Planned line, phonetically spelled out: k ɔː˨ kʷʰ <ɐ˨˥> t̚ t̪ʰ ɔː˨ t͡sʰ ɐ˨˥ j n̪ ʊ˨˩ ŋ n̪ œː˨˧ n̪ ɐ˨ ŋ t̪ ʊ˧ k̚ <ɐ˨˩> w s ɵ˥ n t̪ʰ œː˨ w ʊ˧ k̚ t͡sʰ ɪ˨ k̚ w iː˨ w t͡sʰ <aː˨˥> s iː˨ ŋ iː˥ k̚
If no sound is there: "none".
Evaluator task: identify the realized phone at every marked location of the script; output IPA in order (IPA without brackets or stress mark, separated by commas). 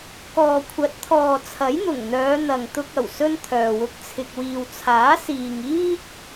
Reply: ɐ˨˥, ɐ˨˩, aː˨˥